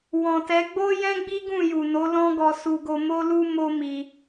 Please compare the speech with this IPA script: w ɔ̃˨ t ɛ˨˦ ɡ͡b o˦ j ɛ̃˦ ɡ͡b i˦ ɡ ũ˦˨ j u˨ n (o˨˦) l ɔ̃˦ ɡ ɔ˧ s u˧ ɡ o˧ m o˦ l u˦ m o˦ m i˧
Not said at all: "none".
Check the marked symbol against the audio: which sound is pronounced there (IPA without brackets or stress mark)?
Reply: o˨˦